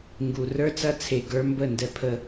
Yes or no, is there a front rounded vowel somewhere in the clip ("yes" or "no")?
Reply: no